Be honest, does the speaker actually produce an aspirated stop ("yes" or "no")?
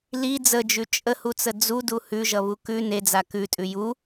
no